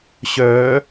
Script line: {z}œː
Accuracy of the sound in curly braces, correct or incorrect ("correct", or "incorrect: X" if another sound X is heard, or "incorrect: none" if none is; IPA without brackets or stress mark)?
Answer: incorrect: ɕ